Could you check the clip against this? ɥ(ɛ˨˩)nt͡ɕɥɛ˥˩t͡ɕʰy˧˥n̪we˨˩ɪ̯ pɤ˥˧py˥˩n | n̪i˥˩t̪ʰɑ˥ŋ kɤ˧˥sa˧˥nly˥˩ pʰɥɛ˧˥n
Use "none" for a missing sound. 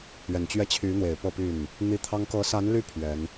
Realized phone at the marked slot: ɛ˨˩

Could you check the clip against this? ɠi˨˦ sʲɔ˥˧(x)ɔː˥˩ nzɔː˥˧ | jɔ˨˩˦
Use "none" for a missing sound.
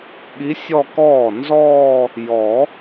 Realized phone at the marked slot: k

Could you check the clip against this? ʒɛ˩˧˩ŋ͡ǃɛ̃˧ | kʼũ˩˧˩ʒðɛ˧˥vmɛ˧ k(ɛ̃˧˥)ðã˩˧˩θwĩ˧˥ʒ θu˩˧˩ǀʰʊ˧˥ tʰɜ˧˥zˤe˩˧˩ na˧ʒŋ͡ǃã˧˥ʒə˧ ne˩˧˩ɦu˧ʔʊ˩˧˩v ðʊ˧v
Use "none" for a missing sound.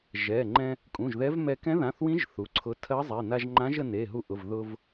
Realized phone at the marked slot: ɛ̃˧˥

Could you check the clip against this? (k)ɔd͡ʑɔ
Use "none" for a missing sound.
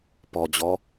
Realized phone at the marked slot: p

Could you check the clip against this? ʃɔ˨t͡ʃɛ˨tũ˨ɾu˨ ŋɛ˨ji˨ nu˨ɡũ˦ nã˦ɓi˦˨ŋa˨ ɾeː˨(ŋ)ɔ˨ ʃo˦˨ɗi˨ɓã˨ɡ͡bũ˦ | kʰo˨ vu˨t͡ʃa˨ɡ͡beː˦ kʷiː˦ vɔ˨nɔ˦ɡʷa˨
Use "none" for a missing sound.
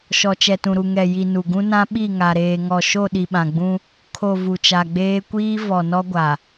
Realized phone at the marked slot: ŋ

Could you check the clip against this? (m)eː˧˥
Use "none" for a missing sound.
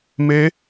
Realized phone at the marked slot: m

